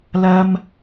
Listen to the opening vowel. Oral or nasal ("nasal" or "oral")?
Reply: oral